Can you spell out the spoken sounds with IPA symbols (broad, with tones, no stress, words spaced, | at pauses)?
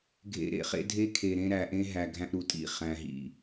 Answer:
ɡʱḛ˨ ɾḛ˨χḛ˦dʱe˦ kʰe˨ɾẽ˦ ɾæ˨ʔẽ˦ ɦæ˨ ɡʱæ̃˦ʔɾu˨tʼḭ˦˨ χæ̃˨ ɦḭ˨